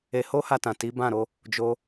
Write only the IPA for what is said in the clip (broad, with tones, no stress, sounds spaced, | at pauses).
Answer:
e˧ h o˦ h a˧ t ã˨ t i˨˦ b ã˦˨ ɾ o˧ | d͡ʒ o˧